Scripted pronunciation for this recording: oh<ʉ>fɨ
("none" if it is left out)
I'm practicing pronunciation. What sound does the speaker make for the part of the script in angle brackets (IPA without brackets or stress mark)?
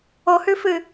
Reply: ʉ